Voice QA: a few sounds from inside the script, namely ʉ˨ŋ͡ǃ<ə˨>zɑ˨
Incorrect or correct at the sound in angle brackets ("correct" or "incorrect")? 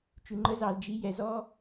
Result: incorrect